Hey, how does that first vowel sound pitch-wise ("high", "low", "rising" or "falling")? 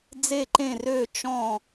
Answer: falling